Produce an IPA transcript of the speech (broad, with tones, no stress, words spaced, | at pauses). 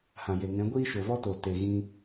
hã˨je˨ŋɛ̃˨˦ ɡʷiː˦ʃo˨vɔ˦toː˨ te˨ɣĩ˧